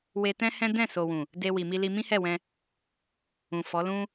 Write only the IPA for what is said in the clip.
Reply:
we˧tɛ̃˦ hɛ̃˦ dɛ̃˦˨ so˨wũ˨ | de˧wi˨mi˧li˧ mĩ˦hɛ˦˨wɛ̃˧ | ũ˨ fɔ˨˦lũ˦

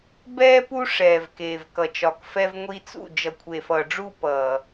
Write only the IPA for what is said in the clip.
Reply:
bɛː˦ pu˦ʂɛː˨v keː˨v kʌ˨t͡ʃɒ˨kfɛ˦v ŋʷi˦t͡sṵ˦˨ d͡ʒʌ˨kʷʰe˨fʌː˨ɖ͡ʐu˦˨ pʌː˨

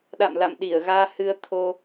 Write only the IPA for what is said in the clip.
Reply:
ɗa̰˧˨mla̰˧˨m ɗi˧˩ə̯ɣaː˧hɨ˧ə̯ t̪ʰo˧

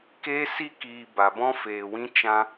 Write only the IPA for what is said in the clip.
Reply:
keː˦si˦kiː˧ ba˧bɔ̃˦feː˧wĩ˦ t͡ʃã˦

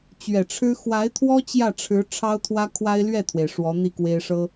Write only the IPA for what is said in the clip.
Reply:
t͡ɕɥɛ˨˩ʈ͡ʂʰɻ̩˥ xwa˧˥ɪ̯t̪ʰwɔ˥ t͡ɕjä˥˩ʈ͡ʂʰɻ̩˧˥ ʈ͡ʂʰɑ˥ʊ̯t̪ʰwä˥ kʰwa˥ɪ̯lɥɛ˥˩t̪ʰwe˩ɪ̯ ʂwɔ˧˥n̪i˥˩kwe˥ɪ̯ ʂɤ˥

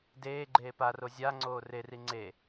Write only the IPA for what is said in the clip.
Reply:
deː ɡ͡ǃeːparo zʲaŋ͡ǀoː reri ŋ͡ǀe

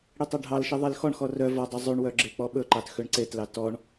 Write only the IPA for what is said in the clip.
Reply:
ɽitˤɛɖʱɑlʃi ðˤilxɔɳxɔ rœ vɔdˤɵ zˤʉɳwœ ɡ͡ǁek͡pɔɓɵǃɑt xøɳǀetlɑ tɔɳ

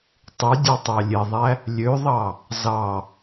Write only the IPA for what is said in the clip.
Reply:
tˤydʲɑtˤɑ lʲeðˤæ | lʲøðˤɑ | zɑ

